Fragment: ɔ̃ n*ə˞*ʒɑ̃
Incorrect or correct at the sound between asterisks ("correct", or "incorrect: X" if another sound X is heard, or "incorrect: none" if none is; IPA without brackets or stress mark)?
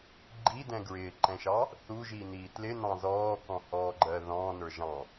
correct